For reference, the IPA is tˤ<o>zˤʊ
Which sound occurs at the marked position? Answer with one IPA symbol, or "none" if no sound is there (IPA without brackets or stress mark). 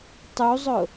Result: u